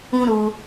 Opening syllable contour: high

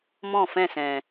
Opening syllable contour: falling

